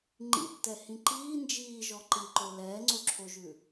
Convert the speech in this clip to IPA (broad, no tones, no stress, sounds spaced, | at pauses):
ŋ͡ǃ ḭ tː ɛ h ĩ ǃ iː n d͡ʒ iː ʒ ɔ ǃ i ǃ o l ɛː ŋ͡ǀ o ǁʰ o ʒ ʉ